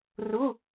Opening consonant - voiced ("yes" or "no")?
yes